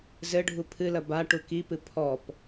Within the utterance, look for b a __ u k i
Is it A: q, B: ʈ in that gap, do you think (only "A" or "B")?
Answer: B